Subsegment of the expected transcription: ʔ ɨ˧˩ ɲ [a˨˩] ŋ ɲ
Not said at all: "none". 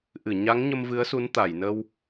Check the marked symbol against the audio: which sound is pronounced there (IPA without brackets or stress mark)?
a˨˦